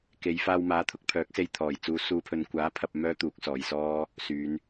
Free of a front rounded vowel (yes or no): no